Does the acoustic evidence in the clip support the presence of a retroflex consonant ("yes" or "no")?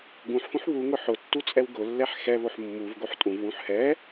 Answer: no